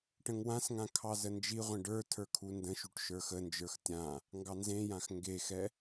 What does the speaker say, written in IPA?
ʈ ə̃ ŋ w ã s ŋ ã kʰ ɑ z ə n d͡ʒ i ʁʷ ẽ ɖ ə˞ tʰ ə˞ kʰ u n d ə̃ ʃ u ʈ ʃ ə˞ x ə n d͡ʒ ə˞ x tʲ ã | ŋ ɡ ɑ n z ẽ j ã x ŋ ɡ e x ɛ

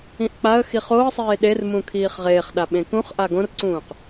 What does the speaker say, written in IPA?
ĩ ʔ k͡p a ə̯ x i χ o ə̯ sˤ eː ɗ e r m ũ kʰ iː χ ʁ eː χ ɗ a ɓ ẽ k ũ χ ʔ a ɡ õ r ǀ ũː q

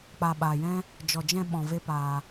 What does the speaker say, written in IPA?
k͡p a˨ ɓ aː˨ j ɛ̃˦ | d͡ʒ ɔ˨ d͡ʒ ɛ̃˧ ɓ ɔ̃˨ v e˦ p aː˧

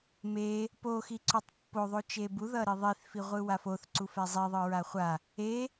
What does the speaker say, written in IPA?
m e | p o x i ǀ o tˤ pː o ðˤ o t͡ʃ e b u ð ʌ ɾ i ðˤ i θ f i ʁʷ ɯ w a f o θ ǀ u f ɛ zˤ i ðˤ ɯ ɹ a χʷ a | e

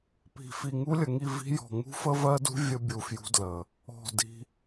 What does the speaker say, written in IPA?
p i̤˨ f i˨ ŋ u˦ lʲ ə˨ ŋ i˦˨ v i̤˦ j ɔ̤˨ ŋ ṳ˦ f ə˦ v ɜ˦ d ṳ˦ vʲ ə˦ bʲ u˨ f j ṳ˦ d l ə˨ | ɔ̤˦˨ d i̤˦

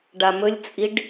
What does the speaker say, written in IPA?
ɖ a m ɵ lʲ t͡sʼ i ɖ

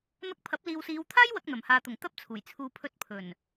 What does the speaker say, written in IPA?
n̪ ɐ˧ k̚ pʰ ɐ˨˥ p̚ l iː˨ w s iː˨˧ w t̪ʰ aː˥ j w ɐ˧ k̚ n̪ ɐ˨˩ m h aː˨ t̪ ʊ˨˩ ŋ t̪ ɐ˥ p̚ t͡sʰ uː˨˩ j t͡sʰ uː˨ pʰ ɵ˧ t̚ pʰ ɵ˨˩ n

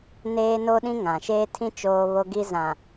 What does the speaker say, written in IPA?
n eː˦ n o˦ ɗ ĩ˦ ŋ ã˨ ʃ eː˦ tʰ ĩ˦ t͡ʃ oː˦ β o˦ ɡ i˦ z ã˨

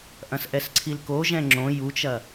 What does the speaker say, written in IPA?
ʔ ɐ̃ s ʔ ɛ s ǀʰ i l k o ʒ ɛ̃ ŋ͡ǁ õ j u t͡ʃ ɐ

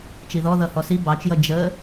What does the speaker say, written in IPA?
t͡ʃ i ð ɔ ð ʌ h ɔ s i b ɑ t͡ʃ j ʌ d͡ʒ ə

